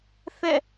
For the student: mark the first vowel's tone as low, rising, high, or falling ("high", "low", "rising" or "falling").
falling